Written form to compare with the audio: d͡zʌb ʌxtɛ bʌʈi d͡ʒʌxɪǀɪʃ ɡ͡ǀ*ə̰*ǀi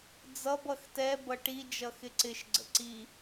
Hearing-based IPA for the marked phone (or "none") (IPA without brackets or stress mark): ə̰